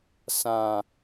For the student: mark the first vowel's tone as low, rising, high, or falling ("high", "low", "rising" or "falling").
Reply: low